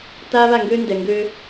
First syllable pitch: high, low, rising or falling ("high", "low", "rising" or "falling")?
high